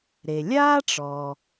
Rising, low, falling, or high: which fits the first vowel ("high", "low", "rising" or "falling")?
low